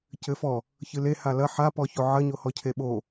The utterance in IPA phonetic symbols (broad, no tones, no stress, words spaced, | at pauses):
cɘfɔ | çɨle halɐ ħapɔço ʕɐɲohɔ cʰeɓo